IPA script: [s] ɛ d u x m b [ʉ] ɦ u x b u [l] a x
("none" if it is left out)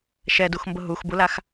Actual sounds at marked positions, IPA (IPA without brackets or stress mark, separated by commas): ʃ, ʊ, l